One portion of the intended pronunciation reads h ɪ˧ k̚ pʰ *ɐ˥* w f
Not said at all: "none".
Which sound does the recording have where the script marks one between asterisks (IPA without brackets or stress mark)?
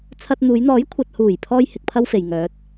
ɐ˥